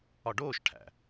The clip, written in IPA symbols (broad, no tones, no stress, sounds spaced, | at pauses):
ɒ ɖ oː ʃ ʈʰ æ̰